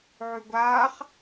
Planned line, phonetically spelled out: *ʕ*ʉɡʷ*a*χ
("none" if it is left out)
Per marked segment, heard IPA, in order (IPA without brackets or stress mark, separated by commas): ʕ, aː